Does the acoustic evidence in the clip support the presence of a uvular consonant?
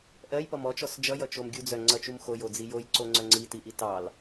no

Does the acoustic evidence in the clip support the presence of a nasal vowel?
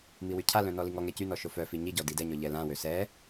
yes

